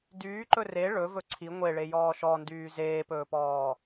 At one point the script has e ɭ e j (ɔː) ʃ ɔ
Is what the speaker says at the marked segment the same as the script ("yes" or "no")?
yes